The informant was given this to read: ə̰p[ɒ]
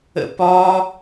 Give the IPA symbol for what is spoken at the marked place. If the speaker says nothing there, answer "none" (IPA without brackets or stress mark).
ɒ